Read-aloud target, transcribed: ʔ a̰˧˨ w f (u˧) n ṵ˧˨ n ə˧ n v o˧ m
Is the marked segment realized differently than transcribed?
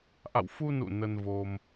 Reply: no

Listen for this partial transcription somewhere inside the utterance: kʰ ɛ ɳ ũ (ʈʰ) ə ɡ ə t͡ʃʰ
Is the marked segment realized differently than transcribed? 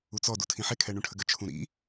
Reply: no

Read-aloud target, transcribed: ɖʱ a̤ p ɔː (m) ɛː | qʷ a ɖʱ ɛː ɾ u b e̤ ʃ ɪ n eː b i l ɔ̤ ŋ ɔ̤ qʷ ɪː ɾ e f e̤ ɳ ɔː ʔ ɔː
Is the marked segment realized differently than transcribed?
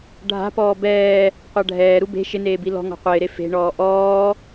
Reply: yes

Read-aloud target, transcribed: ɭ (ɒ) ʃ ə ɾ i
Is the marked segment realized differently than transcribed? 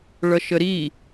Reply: yes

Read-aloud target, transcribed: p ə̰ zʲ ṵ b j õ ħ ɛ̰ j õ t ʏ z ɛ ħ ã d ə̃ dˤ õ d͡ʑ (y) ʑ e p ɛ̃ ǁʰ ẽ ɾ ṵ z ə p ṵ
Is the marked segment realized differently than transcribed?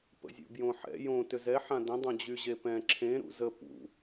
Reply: no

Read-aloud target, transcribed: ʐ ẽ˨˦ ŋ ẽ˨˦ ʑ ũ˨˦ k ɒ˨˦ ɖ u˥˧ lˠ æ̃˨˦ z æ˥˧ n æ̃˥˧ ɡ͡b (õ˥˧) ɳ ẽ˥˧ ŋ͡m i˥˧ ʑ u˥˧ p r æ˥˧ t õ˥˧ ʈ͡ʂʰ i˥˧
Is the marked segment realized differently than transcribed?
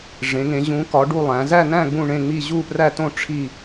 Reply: yes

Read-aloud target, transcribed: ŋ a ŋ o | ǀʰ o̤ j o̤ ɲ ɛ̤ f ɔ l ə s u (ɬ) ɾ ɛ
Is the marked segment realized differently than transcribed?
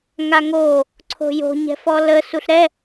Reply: no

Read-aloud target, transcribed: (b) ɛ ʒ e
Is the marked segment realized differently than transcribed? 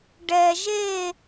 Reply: yes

